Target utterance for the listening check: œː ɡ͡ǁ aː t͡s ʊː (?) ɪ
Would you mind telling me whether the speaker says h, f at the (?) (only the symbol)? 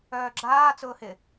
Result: h